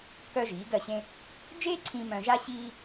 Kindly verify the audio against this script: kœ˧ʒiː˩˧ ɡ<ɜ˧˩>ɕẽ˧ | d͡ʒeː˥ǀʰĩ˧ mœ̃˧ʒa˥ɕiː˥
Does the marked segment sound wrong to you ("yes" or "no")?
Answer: no